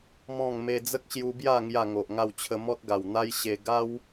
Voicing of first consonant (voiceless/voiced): voiced